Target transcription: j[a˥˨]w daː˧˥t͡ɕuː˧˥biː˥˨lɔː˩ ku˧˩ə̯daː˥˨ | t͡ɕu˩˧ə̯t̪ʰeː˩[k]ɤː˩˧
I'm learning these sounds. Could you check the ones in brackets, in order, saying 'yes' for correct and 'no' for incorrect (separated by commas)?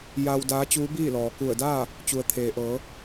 no, no